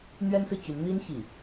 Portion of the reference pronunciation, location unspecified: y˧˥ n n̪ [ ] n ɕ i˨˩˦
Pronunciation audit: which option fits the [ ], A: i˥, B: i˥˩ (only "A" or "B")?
A